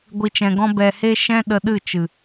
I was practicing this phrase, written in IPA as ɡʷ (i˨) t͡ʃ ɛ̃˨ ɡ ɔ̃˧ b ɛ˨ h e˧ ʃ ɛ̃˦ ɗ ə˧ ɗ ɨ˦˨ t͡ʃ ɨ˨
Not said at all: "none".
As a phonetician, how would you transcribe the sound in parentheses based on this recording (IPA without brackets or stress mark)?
i˨